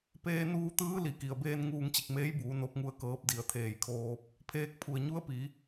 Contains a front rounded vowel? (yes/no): no